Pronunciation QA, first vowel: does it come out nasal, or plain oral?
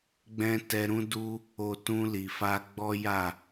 nasal